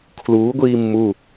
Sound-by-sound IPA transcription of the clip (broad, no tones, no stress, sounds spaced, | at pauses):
kʰ l uː ɡʷ iː mː u